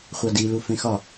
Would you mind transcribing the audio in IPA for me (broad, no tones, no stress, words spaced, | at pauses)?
χʷɑdilu fẽxɒ